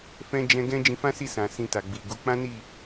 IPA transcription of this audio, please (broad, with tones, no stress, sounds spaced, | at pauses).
f ɛ̃˦ d͡ʒ ɛ̃˧ ɡ ɛ̃˦ d͡ʒ ĩ˧ f ã˦ s i˦˨ s ã˨ s ĩ˧ t a˨ ɡ͡b i˨ ɡ u˨˦ k͡p ã˦ n i˦˨